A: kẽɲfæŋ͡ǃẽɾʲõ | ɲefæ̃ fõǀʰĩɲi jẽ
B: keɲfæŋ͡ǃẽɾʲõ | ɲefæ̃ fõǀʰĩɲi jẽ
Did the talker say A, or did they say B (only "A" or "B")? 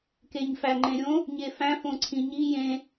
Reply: B